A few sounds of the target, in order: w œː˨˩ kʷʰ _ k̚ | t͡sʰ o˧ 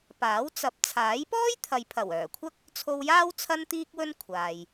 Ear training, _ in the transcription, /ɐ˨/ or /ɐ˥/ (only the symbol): ɐ˥